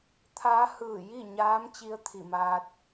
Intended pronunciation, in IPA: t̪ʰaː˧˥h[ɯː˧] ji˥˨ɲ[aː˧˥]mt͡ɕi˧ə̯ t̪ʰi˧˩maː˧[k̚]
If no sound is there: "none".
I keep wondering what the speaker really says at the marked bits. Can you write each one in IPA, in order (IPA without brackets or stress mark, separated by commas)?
ɯː˧˩, aː˧˥, t̚